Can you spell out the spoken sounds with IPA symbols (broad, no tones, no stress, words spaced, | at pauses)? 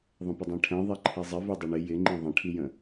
ðˤə̃pədˤɛ̃ʈʰɛ̃ ðˤɛǃʰizˤɪ vidˤʏɳɪ jɪŋ͡ǃĩ ðˤə̃ʈʰijə̃